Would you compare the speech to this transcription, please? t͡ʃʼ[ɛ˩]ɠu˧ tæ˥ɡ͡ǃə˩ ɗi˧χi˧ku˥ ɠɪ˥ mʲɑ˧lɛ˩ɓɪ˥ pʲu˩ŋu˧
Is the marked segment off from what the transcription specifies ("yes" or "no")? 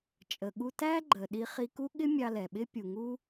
yes